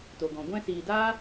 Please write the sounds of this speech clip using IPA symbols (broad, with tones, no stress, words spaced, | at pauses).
to˨ɡɔ̃˨ ɡʷɛ̃˧siː˨daː˦